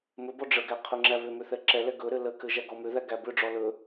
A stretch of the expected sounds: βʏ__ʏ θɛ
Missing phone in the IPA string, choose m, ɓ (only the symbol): m